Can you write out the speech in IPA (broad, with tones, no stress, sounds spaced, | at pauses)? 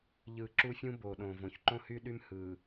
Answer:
ʎ ɯ˨ ǁ u˦ fʲ ũ˦ b o˨ ɗ õ˨ v õ˨ ç ǃ õ˦ h y˦ ɗ y˦ m h ɯ˨